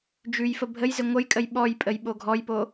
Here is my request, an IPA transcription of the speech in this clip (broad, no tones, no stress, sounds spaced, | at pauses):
d͡ʒ ʉ j f ə bʱ ə j z ɪ ŋʷ ə j kʼ ə j ɓ ɔ j pʼ ə j ɓ o ɡʱ ɔ j p o